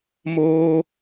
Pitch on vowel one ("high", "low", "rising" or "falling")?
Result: high